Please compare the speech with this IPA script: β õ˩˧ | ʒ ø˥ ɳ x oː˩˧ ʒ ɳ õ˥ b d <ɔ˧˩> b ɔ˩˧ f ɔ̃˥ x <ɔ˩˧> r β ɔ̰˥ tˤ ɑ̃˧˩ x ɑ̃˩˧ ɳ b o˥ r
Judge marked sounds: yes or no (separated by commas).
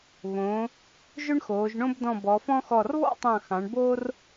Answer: no, no